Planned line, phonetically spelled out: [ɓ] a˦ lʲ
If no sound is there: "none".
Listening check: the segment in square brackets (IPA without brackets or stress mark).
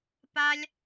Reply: p